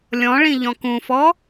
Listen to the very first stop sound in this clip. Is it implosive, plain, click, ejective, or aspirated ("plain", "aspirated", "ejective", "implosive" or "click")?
plain